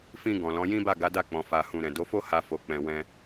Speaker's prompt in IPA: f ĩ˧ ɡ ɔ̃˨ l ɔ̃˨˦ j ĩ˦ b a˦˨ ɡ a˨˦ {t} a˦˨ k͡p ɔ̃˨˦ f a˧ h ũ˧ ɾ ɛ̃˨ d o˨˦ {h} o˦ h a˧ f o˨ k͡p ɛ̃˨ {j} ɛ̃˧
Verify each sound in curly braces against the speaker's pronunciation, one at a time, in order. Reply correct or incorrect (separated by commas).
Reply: incorrect, incorrect, incorrect